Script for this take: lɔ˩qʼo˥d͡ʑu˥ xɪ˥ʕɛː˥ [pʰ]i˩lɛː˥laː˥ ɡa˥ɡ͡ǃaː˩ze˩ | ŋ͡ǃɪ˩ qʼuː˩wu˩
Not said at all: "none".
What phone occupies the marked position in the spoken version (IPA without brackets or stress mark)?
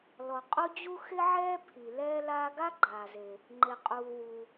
pʰ